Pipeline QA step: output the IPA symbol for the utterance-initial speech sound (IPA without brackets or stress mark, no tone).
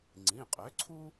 ŋ͡ǀ